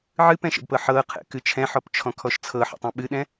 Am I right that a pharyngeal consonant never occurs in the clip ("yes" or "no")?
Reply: no